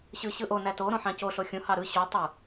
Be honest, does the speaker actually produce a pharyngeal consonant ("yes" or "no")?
yes